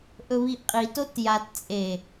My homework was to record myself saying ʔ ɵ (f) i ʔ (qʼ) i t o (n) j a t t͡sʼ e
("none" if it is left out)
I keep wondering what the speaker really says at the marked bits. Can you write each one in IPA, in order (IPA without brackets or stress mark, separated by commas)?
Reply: β, qʼ, t